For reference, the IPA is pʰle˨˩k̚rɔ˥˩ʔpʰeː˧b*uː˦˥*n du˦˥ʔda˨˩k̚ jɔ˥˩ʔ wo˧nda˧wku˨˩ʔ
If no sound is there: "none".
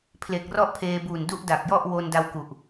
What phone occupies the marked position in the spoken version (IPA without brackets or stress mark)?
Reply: uː˨˩